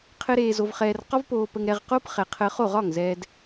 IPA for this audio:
qʰ ɘ˦ ɾ eː˧ z o˧ v χ ɛː˧ r q ɒ˦ v p oː˧ p ə˧ ŋ ɾ ɛ˧ ʁ q o˦ p χ ɛ˨ qʰ əː˧ χ o˦˨ ʁ ɒ˦˨ ŋ z ɛː˧ d

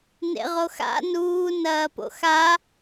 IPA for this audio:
n ḛ ʁ o x a̰ n uː n ɐː p o̰ x a

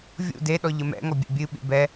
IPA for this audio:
vʲ ṵ d e ɗ ɔ ʎ ə m ɛ̰ ŋ ɔ bʲ ḛ bʲ ɨ ɓ ḭ b ɛ

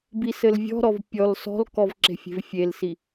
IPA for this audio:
b i s ɘ l vʲ ɔ̤ ɾ ɔ v pʲ ɔ l s ɔ̤ l k ɔ v ǁ e̤ fʲ e̤ v fʲ e l s i

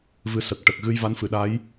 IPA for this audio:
v ɨ˧ s ə˨˩ k̚ ʈ ə˨˩ k̚ ɣ ɨ˧ j v a˧˥ n f ɨ˨˩˨ ɗ a˧˥ j

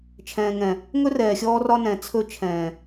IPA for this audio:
t͡ʃʰ ɛ̃ː˨ ŋ ɛ̃˨ | ŋ ɵ˦ r ɛː˨ xʲ ɔː˦ r ɒ˦ n ɛ̃˨ t͡sʰ ɵ˦ t͡ʃʰ ɛ̃ː˨

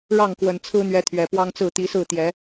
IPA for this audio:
ɻ ɑ˥˨ ŋ k w ə˨˩ n t͡sʰ ɹ̩˦ n̪ ɥ ɛ˨˦ t̪ʰ ɥ ɛ˨˩ p w ɑ˦ ŋ t͡s ɹ̩˥˨ t̪ i˨˦ s ɹ̩˥˨ t̪ j ɛ˨˦

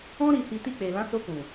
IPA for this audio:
ɔ̃˦ ɾ i˧ h i˧ t i˧ k͡p e˨ l ã˨˦ s o˧ k ũ˨

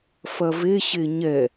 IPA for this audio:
f ɐ v e ɕ e ɲ ɛ

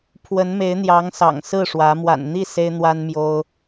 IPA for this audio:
pʰ w ə˧˥ n m e˧˥ ɪ̯ n̪ j ɑ˧˥ ŋ s ɑ̰˨˩ ŋ s ɹ̩˥˩ ʂ w ä˧˥ m w a̰˨˩ n n̪ i˥˩ s e˥ ɪ̯ n̪ w a˥ n m j o˥ ʊ̯

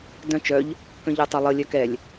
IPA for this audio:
d œ̃ t͡ʃ œ ʎ | k œ̃ ʎ ə˞ tˤ ə˞ lˠ ə lʲ œ k ɛ lʲ

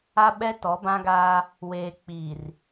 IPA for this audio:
a˦ ɓ ɛ˦ t ɔ˨˦ b ã˦ ɡ aː˦ | w eː˨ k͡p iː˨ r

